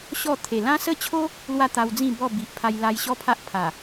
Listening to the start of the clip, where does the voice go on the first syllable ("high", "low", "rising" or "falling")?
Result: falling